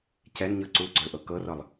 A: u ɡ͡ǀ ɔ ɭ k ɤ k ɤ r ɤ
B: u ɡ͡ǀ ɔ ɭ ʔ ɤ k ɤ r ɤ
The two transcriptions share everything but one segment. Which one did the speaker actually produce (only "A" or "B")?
B